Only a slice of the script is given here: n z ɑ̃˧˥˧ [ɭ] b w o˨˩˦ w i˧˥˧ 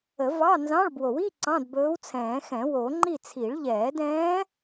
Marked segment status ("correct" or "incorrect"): correct